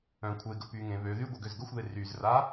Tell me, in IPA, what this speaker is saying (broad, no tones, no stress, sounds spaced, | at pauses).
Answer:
œ̃ kʷʰ e ɡ ə p y ŋ ẽ β ø ð y ɡʷ ɛ ɡ ø z ɡ ə xʷ ð e r y z r a